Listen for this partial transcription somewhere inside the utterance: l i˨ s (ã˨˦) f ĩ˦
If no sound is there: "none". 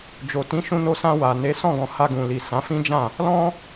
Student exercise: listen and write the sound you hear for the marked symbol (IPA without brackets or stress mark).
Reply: ã˨˦